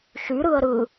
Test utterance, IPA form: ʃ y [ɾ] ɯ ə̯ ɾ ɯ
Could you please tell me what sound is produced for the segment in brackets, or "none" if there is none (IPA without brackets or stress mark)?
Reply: ɾ